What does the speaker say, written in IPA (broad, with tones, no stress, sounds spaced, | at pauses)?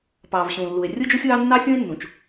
p ɑː˩ v ɕ ũː˩ lː u˩ e̯ rʲ ɯ˥ d͡ʒ u˥ sʲ w ɑ˥ nː ɑ˥ sʲ õ˥ e̯ nː ũ˩ t͡ʃ